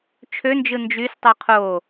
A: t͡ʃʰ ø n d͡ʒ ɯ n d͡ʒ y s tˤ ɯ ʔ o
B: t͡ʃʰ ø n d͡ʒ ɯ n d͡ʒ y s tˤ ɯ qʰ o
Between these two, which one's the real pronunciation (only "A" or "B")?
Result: B